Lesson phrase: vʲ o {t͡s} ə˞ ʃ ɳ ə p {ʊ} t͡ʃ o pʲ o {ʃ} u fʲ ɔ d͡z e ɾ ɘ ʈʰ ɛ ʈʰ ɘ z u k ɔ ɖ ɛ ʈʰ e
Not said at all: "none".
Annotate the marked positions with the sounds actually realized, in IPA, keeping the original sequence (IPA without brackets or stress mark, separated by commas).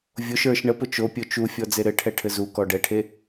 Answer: ʃ, ʊ, t͡ʃ